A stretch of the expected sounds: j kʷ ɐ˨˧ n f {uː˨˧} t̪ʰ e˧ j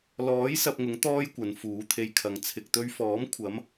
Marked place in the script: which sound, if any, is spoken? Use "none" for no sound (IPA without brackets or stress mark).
uː˨˥